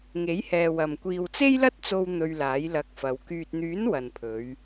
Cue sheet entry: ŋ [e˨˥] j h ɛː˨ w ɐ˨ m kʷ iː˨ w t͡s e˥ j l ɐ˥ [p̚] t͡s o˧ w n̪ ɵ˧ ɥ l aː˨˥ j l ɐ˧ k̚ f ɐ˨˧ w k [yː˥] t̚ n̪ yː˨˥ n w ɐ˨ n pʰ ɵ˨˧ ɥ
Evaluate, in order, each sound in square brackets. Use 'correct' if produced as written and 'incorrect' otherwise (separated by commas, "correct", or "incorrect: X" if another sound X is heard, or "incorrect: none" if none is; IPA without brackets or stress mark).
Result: correct, incorrect: t̚, incorrect: yː˨